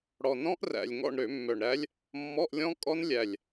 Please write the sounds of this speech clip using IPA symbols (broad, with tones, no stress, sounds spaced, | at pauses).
ɽ ɔ˨˩ n ɔ̃˦˥ ʔ r æ̰˨˩ lʲ ŋ ɔ̰˦˨ ɳ ɾ ø˧˩˧ mː œ˨˩ ɳ ɾ æ˦˥ lʲ | mː ɔ˧˥˧ ʔ lʲ ɔ̃˦˥ kʼ ɔ˦˥ n lʲ æ˨˩ lʲ